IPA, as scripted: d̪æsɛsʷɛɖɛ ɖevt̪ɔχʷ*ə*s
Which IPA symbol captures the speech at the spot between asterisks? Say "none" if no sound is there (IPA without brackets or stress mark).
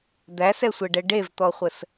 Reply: ə